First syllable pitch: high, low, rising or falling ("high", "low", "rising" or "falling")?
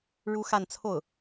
high